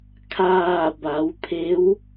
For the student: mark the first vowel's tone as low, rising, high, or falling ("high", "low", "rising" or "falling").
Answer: falling